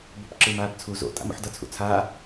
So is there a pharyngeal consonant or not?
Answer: yes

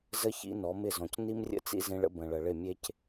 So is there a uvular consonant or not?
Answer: no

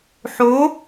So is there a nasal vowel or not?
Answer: no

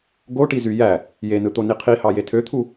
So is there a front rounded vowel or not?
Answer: yes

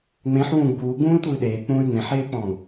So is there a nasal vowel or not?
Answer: yes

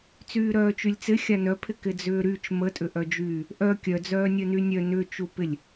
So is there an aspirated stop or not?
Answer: yes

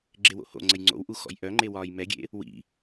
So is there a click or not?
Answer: yes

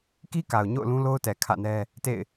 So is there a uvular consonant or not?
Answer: no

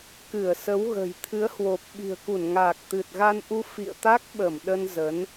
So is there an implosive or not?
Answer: yes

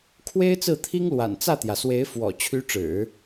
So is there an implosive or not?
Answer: no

